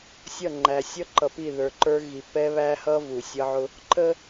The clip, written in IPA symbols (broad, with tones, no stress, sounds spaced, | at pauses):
sʲ ʌ˦˨ ŋ͡ǃ æ˨ sʲ ʌ˦ ǃ ʌ˨ p i˦˨ ð ə˞˨ ǃ ə˞˦ ɣ i˨ p ɛ˦ β æ˦ h ʌ˦ v u˨ sʲ ʌ˦ ʕ ʊ˦ | ǃ ə˦